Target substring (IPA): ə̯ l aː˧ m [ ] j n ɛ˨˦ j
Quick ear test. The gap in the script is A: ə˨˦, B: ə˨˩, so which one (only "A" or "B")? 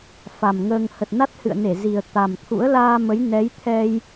A